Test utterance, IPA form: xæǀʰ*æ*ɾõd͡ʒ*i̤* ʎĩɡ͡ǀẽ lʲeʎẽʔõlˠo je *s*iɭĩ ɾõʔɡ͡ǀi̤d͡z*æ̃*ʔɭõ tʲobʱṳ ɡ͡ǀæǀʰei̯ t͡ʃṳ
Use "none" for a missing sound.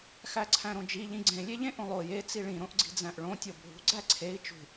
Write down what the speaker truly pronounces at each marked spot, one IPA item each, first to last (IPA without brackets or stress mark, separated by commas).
æ̃, i, t͡s, æ̃